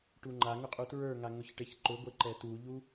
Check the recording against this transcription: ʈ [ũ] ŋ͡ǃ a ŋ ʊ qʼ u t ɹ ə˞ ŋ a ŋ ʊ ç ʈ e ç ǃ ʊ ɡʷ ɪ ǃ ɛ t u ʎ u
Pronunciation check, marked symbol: incorrect: u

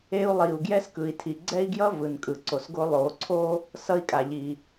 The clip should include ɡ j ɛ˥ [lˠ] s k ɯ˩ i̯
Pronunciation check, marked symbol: incorrect: none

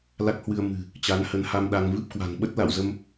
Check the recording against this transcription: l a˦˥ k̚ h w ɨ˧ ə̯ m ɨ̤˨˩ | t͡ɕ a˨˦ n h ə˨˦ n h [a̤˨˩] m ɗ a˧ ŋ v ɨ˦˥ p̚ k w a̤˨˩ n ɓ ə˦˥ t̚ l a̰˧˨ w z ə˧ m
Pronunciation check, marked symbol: incorrect: a˧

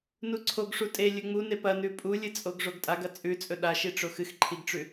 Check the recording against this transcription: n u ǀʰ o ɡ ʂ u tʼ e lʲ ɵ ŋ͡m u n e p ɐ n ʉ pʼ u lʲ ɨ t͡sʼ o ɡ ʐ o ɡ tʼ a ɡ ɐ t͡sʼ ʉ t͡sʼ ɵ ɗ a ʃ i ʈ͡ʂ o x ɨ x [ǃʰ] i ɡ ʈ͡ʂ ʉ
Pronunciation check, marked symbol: correct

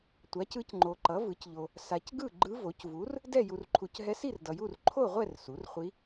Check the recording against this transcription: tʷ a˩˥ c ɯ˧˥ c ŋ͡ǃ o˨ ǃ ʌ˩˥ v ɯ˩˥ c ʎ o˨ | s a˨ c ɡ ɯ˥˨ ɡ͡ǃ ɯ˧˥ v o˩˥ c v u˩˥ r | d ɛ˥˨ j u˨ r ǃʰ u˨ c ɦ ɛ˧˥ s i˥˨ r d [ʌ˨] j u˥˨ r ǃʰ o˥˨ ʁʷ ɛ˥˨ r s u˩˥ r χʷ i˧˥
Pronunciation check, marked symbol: correct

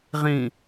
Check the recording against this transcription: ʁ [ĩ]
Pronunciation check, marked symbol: correct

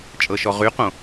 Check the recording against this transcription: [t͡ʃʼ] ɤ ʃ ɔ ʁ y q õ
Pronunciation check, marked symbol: correct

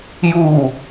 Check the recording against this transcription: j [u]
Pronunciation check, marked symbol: correct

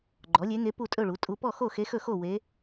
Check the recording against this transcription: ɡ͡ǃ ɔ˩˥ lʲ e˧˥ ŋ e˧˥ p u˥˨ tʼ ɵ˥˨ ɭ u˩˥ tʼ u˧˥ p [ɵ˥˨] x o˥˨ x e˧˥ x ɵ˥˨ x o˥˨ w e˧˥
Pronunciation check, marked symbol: incorrect: ɔ˥˨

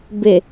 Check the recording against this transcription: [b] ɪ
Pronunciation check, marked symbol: correct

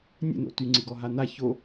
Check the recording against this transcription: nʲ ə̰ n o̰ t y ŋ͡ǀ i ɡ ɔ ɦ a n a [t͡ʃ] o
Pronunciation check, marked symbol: incorrect: ç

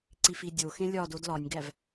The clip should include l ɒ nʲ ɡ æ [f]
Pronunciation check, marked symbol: incorrect: v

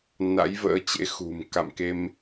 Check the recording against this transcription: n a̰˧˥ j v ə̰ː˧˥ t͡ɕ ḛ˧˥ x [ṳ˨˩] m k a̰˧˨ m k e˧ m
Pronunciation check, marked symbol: correct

